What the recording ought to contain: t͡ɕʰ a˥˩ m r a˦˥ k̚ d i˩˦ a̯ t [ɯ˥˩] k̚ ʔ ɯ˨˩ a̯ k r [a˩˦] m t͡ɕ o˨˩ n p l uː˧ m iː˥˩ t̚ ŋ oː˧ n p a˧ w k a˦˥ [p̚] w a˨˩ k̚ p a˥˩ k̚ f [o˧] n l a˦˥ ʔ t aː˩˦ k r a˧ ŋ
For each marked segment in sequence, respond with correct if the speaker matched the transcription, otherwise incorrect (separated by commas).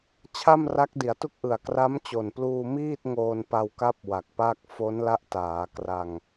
incorrect, incorrect, correct, incorrect